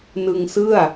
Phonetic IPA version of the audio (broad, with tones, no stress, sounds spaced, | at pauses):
n ɯ˧ ŋ s ɯ˥˩ a̯